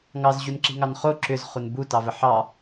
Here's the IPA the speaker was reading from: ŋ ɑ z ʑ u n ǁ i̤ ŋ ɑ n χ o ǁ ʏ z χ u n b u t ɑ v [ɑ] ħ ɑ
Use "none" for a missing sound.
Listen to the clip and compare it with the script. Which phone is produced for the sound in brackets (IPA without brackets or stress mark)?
ə